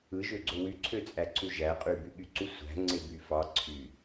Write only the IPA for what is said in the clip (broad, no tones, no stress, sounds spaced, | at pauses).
ɯ ʒ ø ɡ͡ǀ o w y ǀʰ ø t͡sʼ æ ǀ u ʒ æ qʼ y b y ɠ y ǀ u sʷ æ̤ ŋ͡ǀ e b y f ɑ ǀʰ y